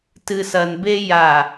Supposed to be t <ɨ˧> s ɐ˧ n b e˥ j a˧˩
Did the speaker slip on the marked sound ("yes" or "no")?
no